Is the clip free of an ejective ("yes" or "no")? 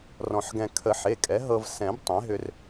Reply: no